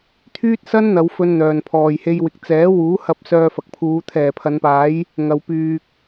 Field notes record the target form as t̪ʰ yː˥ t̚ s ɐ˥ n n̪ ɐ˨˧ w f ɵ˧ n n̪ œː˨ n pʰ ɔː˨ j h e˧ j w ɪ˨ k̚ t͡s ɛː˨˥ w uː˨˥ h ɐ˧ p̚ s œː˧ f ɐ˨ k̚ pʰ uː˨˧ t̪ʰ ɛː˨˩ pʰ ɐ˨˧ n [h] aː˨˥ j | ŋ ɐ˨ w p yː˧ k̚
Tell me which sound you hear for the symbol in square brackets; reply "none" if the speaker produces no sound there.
p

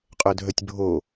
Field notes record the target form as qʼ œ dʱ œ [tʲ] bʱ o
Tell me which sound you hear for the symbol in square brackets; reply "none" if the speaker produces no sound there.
tʲ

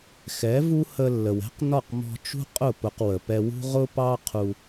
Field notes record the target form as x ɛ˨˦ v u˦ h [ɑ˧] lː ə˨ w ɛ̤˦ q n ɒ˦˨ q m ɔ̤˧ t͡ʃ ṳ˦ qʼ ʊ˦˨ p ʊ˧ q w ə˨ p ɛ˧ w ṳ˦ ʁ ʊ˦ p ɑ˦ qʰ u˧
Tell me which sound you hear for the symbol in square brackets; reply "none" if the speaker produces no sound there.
ə˧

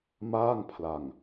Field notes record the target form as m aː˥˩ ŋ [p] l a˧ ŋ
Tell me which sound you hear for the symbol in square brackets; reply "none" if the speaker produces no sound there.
pʰ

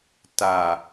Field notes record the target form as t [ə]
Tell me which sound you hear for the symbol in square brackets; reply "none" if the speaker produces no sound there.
a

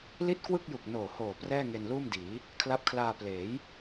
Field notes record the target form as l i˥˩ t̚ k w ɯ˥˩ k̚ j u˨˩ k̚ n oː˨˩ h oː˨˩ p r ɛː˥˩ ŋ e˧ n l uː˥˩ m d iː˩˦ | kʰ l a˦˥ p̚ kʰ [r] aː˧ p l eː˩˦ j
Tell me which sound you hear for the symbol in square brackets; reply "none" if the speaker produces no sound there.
l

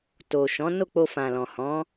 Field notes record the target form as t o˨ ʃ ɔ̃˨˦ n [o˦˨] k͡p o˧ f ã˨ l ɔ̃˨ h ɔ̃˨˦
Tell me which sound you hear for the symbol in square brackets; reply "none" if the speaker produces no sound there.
o˦˨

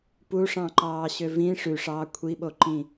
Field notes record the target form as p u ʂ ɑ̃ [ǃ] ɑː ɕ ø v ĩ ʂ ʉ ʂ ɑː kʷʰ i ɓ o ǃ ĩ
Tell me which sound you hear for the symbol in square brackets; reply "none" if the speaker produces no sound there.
ǃ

